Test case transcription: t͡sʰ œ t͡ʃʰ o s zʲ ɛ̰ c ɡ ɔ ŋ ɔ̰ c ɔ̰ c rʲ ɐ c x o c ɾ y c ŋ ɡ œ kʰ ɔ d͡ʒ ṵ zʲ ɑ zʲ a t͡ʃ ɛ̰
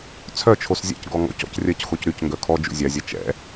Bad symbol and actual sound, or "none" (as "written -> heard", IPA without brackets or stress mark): ɑ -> a